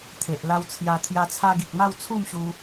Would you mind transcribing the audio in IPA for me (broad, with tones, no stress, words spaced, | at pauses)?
t̪ʰe˨ʔla˧wt͡sʰja˧ t̪ʰja˧t͡sʰa˧ɡi˨k̚ma˥˧w t͡sʰu˥˧mɕu˧